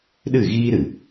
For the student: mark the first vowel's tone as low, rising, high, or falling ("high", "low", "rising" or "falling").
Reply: falling